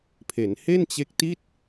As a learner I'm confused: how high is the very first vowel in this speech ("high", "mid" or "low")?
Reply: mid